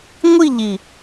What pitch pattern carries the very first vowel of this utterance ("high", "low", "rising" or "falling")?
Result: falling